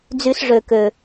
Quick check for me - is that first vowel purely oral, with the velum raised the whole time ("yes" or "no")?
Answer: yes